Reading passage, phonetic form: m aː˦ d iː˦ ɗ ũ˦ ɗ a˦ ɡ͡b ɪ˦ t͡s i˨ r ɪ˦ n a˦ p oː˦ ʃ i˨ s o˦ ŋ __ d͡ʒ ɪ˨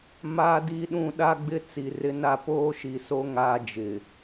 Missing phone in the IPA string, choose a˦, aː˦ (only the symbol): aː˦